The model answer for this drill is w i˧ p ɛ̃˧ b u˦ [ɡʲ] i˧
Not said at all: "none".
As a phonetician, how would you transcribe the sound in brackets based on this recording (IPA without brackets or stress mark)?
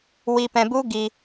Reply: ɡ